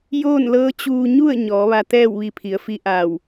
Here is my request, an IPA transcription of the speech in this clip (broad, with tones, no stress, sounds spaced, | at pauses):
j oː˥˨ n l ɤː˧˥ t͡ɕ uː˧ ɲ u˥˨ ə̯ ɲ ɔː˩˧ ʋ a˧ t̪ ɛː˥˨ w ʋ i˧ pʰ i˩˧ ə̯ f i˧˥ ʔ aː˧˩ w